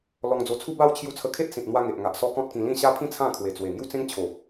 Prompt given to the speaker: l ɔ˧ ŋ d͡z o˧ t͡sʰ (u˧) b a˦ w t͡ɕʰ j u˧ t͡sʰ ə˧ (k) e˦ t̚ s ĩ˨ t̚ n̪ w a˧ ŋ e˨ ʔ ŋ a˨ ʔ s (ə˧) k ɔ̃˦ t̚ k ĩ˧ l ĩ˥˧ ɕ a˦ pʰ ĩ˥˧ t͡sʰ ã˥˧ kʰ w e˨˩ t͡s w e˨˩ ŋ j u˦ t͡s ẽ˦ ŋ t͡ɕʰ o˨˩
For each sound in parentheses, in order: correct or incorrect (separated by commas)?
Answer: incorrect, incorrect, incorrect